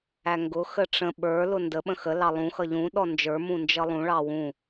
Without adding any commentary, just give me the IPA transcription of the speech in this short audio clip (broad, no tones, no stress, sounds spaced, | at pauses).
æ ŋ ɡ ʊ x ə ʈ͡ʂ ə̃ ɓ ə˞ l ʊ n d ə ɓ ə̃ x ə l ɑ lˠ ũ x ʌ ʎ ũ ɗ ɔ n d͡ʒ ə˞ m ũ n d͡ʒ ʌ lˠ ũ ɭ ɑ w ũ